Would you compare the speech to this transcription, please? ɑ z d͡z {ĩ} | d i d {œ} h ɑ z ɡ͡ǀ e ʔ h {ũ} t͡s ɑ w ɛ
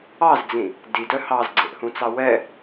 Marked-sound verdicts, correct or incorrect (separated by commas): correct, correct, correct